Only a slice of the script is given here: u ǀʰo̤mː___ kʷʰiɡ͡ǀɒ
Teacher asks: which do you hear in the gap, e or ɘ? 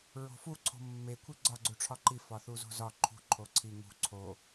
e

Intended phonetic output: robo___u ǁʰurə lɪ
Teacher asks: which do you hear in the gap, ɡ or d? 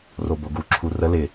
ɡ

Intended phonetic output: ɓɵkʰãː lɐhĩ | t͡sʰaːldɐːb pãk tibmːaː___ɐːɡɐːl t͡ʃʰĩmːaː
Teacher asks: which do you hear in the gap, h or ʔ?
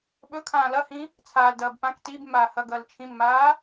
h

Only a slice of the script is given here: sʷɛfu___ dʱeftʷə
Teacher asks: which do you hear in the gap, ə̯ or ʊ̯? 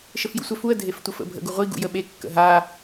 ə̯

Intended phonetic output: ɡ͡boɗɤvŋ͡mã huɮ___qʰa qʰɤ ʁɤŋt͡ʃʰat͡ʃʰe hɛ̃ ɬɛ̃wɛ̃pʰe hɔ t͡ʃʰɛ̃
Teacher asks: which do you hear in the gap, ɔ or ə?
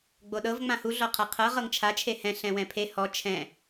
ɔ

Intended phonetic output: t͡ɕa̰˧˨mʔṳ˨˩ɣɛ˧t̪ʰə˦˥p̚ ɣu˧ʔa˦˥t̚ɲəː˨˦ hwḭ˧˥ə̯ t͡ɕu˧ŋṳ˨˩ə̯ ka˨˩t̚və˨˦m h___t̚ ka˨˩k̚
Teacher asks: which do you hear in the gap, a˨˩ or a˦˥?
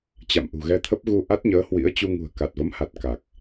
a˨˩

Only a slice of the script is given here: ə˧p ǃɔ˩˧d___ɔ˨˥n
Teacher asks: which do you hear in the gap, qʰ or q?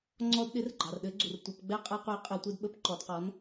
q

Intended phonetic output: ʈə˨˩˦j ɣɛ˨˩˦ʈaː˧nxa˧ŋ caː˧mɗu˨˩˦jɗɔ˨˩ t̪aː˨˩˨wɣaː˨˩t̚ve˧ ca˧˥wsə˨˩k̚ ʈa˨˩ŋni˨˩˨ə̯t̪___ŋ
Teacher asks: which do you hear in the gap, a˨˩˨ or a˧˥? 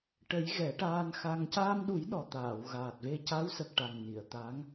a˧˥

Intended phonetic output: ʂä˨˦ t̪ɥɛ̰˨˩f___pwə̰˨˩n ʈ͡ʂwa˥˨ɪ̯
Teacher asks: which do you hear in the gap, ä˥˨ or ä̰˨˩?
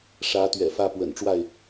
ä˥˨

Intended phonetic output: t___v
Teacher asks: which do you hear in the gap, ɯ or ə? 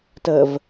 ə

